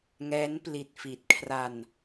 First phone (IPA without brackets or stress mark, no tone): ŋ